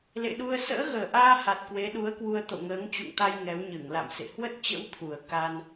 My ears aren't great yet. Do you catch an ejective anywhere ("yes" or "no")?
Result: no